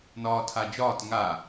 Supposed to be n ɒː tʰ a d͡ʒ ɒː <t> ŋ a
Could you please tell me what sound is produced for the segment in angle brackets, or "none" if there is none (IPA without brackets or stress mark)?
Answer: t